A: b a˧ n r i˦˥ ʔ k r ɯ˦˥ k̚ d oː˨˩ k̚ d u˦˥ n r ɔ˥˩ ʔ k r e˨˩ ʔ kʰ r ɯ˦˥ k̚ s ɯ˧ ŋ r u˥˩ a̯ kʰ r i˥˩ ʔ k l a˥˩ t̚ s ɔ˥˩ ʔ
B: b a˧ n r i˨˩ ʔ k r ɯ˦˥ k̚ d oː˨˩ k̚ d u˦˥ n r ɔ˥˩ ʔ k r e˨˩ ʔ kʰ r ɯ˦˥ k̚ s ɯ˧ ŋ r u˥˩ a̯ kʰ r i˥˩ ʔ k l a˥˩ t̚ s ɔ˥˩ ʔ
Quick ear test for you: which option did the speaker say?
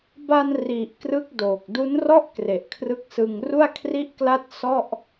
B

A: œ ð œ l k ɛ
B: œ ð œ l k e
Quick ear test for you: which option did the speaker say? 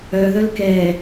A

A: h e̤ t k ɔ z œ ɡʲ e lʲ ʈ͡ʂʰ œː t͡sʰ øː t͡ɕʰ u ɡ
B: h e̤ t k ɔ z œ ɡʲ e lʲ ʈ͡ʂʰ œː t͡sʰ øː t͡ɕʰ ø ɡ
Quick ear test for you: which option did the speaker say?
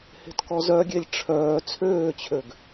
B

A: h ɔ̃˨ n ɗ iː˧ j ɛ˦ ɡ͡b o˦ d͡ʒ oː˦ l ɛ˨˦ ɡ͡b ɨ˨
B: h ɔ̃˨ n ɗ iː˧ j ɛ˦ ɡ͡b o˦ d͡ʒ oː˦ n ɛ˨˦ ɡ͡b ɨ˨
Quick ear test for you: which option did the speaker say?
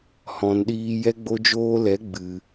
A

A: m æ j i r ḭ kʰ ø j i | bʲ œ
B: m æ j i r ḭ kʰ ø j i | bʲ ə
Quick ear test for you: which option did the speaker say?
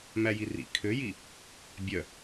A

